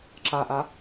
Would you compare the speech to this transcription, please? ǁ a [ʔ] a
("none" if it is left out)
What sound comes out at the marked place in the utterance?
ʔ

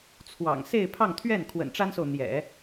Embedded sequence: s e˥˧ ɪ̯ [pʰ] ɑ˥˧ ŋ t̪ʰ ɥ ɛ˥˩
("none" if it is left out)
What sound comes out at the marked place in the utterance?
pʰ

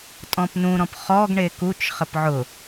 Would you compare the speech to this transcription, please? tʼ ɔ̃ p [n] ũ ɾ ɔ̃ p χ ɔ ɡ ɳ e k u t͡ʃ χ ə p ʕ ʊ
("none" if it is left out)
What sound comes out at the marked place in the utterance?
n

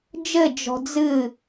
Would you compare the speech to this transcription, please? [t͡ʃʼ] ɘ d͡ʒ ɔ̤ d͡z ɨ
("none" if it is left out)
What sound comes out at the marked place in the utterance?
d͡ʒ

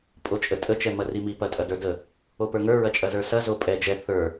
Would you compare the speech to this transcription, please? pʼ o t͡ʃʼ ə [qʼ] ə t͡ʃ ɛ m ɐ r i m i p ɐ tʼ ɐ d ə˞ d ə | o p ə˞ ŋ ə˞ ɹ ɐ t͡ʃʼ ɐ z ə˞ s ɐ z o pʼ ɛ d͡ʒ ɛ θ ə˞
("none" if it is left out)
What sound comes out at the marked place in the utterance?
tʼ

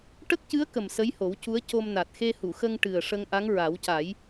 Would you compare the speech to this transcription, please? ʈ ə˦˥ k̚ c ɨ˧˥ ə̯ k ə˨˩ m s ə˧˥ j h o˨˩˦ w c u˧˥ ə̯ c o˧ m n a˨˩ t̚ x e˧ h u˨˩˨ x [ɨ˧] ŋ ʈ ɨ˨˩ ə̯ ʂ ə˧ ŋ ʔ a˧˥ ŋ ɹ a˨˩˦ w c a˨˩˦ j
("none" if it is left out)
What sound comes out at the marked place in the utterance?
ə˧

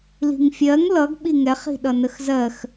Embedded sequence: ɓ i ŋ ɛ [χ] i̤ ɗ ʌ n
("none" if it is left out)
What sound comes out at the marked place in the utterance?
χ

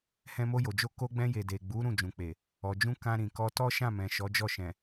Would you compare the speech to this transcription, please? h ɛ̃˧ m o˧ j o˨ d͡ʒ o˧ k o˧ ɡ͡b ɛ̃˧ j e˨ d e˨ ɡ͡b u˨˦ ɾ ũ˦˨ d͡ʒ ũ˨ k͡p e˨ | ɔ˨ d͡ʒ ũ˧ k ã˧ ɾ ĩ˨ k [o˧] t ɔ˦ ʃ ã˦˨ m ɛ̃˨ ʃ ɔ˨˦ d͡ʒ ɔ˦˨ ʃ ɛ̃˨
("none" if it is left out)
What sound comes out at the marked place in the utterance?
ɔ˧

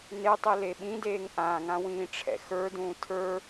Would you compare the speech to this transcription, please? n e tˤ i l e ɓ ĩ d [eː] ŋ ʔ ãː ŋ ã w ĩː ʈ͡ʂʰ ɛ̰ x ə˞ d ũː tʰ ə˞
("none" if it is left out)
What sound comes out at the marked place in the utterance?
eː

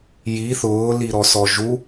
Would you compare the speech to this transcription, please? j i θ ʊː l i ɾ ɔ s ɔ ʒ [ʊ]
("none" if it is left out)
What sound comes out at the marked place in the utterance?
u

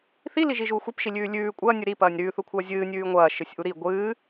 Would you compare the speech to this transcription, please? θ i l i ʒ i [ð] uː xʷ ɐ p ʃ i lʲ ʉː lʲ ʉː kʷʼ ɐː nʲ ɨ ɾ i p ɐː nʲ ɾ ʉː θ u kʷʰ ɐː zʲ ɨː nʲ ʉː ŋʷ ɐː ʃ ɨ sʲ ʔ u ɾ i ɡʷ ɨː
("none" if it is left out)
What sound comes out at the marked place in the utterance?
ʒ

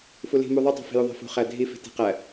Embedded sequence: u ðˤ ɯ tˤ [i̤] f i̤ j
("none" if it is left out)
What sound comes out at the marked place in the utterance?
i̤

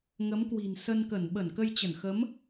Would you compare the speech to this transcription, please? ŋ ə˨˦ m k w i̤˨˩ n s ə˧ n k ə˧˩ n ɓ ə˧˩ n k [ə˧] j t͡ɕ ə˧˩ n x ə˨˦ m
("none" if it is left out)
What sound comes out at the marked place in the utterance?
ə˧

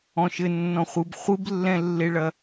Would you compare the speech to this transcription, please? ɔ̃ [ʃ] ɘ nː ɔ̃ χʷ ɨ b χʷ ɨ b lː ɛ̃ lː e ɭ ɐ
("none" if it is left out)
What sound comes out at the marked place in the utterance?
ʃ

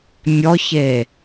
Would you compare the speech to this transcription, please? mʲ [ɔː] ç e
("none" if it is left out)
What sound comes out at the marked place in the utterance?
ɔ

